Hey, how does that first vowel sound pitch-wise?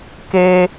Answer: low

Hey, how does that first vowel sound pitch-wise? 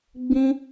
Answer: high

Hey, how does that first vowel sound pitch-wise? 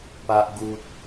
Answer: low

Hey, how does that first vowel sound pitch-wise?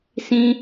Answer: high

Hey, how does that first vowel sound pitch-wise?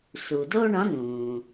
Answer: low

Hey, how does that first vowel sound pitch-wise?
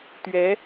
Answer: rising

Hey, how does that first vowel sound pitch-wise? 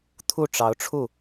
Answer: falling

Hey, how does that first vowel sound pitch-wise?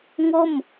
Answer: falling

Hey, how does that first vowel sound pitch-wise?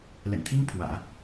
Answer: low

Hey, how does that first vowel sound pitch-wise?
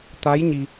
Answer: rising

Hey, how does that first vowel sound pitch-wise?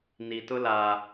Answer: low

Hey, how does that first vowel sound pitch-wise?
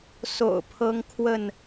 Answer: low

